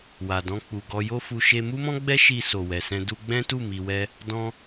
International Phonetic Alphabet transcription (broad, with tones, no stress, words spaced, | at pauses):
wa˨dɔ̃˧ k͡pu˨ɡɔ˧ jo˦fu˧ ʃe˧mu˦mɔ̃˦ ɡ͡bɛ˦ʃi˧ so˨wɛ˨sɛ̃˧ du˧ ɡ͡bɛ̃˦tu˦˨mi˨wɛ˧ | dɔ̃˧